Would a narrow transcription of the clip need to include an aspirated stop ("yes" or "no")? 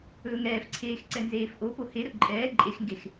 yes